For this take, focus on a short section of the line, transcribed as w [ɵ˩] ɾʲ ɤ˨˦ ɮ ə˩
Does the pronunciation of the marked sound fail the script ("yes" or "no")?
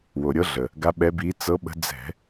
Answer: yes